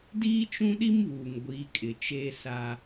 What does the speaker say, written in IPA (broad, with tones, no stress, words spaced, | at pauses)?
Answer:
diː˦t͡ʃũ˦ɗi˦mβuː˨ŋ ɡʷiː˨˦kʼɪ˨ t͡ʃeː˦sa˦